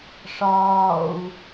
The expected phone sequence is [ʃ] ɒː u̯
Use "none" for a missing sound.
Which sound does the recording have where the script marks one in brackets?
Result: ʂ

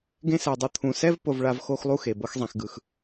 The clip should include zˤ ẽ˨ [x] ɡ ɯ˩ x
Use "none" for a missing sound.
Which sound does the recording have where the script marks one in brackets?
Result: x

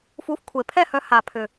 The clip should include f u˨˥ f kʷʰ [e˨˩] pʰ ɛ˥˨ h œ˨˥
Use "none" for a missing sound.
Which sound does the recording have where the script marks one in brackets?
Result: e˨˩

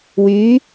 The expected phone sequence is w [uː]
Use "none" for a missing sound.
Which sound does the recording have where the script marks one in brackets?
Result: yː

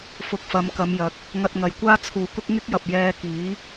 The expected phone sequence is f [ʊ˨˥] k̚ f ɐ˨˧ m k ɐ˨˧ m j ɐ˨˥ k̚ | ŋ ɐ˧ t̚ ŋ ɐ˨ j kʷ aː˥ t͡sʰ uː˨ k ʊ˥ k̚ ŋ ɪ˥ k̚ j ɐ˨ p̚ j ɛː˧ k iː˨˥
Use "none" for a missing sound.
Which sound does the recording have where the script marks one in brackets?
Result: ʊ˧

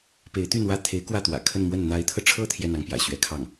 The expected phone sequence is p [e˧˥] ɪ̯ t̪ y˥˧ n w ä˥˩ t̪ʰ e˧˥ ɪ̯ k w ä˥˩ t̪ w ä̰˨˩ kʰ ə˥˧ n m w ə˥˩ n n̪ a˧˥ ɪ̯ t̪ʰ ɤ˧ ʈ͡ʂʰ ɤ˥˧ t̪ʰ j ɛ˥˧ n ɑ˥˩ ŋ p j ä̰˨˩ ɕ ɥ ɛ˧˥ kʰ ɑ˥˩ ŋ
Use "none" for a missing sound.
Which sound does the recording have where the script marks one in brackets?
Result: e˧˥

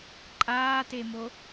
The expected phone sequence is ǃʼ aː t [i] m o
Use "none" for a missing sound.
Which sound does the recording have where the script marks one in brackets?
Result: e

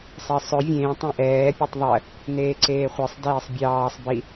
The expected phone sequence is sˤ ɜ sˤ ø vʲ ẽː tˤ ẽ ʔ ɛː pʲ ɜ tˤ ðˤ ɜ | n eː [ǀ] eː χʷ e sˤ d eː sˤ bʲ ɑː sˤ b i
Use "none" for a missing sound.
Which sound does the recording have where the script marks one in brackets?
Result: ǀ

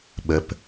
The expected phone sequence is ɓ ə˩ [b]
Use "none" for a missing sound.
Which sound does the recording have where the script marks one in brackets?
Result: p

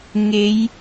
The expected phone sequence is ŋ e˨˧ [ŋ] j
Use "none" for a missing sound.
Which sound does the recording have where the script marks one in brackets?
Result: none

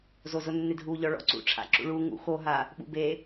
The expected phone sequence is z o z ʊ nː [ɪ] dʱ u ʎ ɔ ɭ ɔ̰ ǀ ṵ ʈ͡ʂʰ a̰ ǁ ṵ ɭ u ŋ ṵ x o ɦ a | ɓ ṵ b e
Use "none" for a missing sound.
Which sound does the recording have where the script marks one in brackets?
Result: ɪ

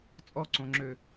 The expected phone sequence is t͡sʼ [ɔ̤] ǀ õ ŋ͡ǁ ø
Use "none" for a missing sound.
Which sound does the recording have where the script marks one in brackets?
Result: ɔ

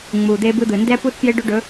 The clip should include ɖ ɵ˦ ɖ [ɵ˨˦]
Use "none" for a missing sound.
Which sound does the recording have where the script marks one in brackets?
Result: ɵ˨˦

